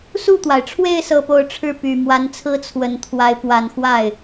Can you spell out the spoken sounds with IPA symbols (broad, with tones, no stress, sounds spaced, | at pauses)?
s u˥˩ t̪ w a˩ ɪ̯ ʈ͡ʂʰ w e˥˧ ɪ̯ s ɤ˥˧ p o˥˧ ʊ̯ ʈ͡ʂʰ ɻ̩˥˩ p y˨˩ m w a˧˥ n t͡sʰ ɹ̩˥ t͡sʰ w ə˨˩ n t̪ʰ w a˧˥ ɪ̯ p w a˨˩ n x w a˥˩ ɪ̯